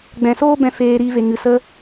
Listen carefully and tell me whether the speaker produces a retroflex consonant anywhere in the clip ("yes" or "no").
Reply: no